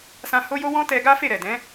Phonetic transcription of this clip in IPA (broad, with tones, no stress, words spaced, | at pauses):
sã˧ ho˦jo˦ wɔ̃˦tɛ˧ɡa˦ fe˦˨ɾɛ˨dɛ̃˨˦